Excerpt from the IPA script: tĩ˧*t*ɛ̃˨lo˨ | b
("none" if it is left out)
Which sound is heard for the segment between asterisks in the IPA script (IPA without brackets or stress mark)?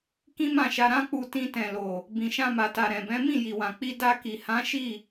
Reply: t